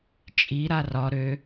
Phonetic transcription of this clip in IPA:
t͡ʃʼ i ɾ a r ɒ ɾ ø

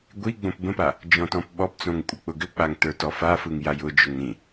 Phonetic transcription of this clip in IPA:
ɡʷ i ɡ͡b õ p b ə̃ p a | d͡ʒ ɔ̃ t ɔ̃ p ɓ ɔ p t͡s õ ŋ kʷʼ ə k͡p ʊ ɡ ʏ k͡p a ŋ t ə˞ t ɔ f a f ɯ ŋ j a j ʊ d͡ʒ ʊ ŋ ɾ ĩ

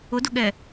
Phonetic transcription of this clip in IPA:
ʊ d ʊ ɠ ɛ

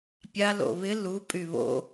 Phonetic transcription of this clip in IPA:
pʲ a l o̰ β ɪ l u pʼ y β o̰

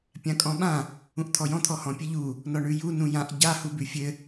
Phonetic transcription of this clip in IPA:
pʲ ã kʼ ɔ̃ ɓ ã | ũ ʔ t̪ʰ ɔ j ɔ̃ t̪ʰ ɔ h ɔ̃ pʲ ɘ ʎ u | n ɔ ɳ ʉ j u n ũ j ã ʔ ɟ a h u b ʉ fʲ ɘ

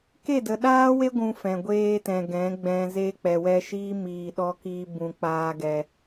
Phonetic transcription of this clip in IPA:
k e˦˨ d ə˨ ɗ aː˦ w e˦ ɡʷ ũ˧ f ɛ̃˨ ɡʷ eː˧ t ɛ̃˨ ɡ ɛ̃˨˦ ɡ͡b ɛ̃˧ z e˦ k͡p ɛ˨ w ɛ˧ ʃ iː˦ m iː˧ ɗ ɔ˦ k iː˦ b ũ˧ k͡p aː˦ ɡ ɛ˧

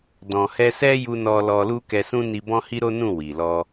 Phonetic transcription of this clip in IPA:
d ɔ̃˨ h ɛ˧ s ɛ˦ j u˧ n ɔ˧ l ɔ˧ l u˦ k ɛ˧ s ũ˦ n i˧ b ɔ̃˦ h i˦ ɾ o˦ n ũ˦˨ w i˨ l ɔ˧

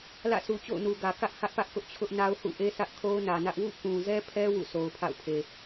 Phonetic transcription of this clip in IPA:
l ä̰˦˨ sʰ u˨ t͡ɕ o̰˦˨ ʊ̯ n u˨ ɡ ä˨ k ä˦ ʔ h ä˦ ʔ p ä˦ ʔ k ʊ˦ ʔ t͡ɕʰ ʊ˦ ʔ n a˦ ʊ̯ h ṵ˦˨ ʔ e˦ sʰ ä˦ ʔ kʰ o˦ ʊ̯ n ä˨ n ä˦ ʔ w ṵ˦˨ k ũ˨ z ɛ˦ pʰ ɛ˦ w ṵ˦˨ sʰ o˨ ʊ̯ pʰ a̰˦˨ ʊ̯ pʰ e˨

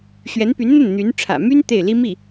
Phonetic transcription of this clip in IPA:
ɕ ɥ ɛ˧˥ n p y˧˥ n n̪ ə˥˩ n n̪ y˧˥ n ʈ͡ʂʰ ä̰˨˩ m y˥ n t̪ e˥˩ ɪ̯ l i˥ m i˥˩

